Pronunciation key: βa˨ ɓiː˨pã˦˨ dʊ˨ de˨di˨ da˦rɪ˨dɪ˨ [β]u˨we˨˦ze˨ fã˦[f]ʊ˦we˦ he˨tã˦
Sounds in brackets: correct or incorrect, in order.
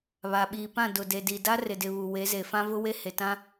correct, incorrect

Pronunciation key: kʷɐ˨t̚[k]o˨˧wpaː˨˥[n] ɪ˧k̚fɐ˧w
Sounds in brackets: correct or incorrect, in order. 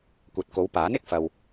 correct, correct

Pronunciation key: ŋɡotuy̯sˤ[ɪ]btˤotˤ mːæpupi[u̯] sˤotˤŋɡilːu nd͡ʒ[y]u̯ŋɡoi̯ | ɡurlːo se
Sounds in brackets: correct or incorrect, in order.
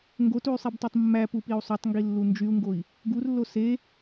incorrect, correct, correct

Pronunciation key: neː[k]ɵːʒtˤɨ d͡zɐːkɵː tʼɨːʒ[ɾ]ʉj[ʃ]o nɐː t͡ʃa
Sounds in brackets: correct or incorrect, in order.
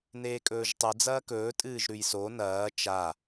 incorrect, correct, incorrect

